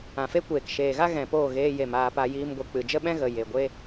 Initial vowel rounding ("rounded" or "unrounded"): unrounded